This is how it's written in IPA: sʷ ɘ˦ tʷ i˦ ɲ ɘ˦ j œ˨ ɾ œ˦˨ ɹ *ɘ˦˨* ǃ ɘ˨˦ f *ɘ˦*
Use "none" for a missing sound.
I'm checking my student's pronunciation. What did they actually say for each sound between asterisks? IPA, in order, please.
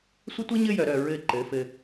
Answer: ɘ˦˨, ɘ˦

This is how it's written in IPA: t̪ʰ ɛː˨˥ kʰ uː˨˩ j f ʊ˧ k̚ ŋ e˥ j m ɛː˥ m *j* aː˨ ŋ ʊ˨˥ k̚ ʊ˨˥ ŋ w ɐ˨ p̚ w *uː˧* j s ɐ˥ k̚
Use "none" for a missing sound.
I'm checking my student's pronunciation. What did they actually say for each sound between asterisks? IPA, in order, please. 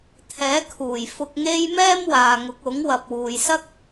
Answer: w, uː˨

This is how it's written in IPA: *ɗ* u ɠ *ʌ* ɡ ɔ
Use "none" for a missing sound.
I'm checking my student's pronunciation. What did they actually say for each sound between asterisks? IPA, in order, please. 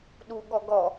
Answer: ɗ, ɔ

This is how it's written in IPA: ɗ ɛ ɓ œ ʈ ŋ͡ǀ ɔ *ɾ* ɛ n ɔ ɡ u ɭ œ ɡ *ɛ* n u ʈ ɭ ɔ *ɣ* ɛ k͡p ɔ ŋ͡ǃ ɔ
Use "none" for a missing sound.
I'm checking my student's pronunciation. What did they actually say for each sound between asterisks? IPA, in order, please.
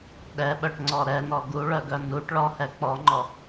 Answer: ɾ, œ, h

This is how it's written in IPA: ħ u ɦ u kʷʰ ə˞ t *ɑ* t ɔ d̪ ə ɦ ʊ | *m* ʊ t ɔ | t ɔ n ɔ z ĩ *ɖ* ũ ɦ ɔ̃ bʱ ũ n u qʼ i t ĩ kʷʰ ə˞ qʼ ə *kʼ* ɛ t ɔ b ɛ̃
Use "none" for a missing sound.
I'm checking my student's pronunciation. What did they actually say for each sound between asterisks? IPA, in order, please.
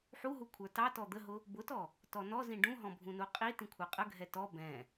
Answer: ɑ, b, ɖ, ɡʱ

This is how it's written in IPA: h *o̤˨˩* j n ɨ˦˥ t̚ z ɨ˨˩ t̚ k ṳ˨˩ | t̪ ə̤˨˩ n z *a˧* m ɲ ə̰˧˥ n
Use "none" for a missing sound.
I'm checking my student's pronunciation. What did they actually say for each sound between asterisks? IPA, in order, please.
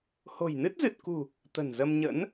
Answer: o̤˨˩, ə˧

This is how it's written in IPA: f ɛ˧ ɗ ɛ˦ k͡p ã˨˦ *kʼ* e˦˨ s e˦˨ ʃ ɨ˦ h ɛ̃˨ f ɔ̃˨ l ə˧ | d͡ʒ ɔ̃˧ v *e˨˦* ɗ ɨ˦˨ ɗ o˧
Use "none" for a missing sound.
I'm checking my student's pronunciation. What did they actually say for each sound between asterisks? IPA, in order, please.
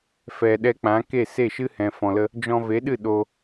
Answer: k, e˨˦

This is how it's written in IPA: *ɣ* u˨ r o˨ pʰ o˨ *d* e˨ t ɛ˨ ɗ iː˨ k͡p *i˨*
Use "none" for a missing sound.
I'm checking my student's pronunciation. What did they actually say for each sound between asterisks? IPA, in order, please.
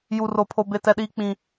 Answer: j, b, ĩ˨

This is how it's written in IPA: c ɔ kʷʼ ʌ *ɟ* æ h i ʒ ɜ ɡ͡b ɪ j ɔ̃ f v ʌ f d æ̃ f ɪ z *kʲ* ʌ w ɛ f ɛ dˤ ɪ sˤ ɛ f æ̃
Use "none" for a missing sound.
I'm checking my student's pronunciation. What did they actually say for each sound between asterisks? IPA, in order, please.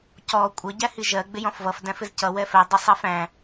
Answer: ɟ, c

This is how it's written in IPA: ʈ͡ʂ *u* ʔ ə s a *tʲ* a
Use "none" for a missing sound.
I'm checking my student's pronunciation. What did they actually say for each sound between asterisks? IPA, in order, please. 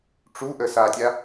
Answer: u, tʲ

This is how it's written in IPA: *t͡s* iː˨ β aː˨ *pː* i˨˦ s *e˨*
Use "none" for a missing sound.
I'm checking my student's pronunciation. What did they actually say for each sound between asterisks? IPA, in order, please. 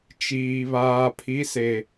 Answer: t͡ʃ, pʰ, e˨

